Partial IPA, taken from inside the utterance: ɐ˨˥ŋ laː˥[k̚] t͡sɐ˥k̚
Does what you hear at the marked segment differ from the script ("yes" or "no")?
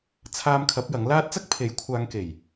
yes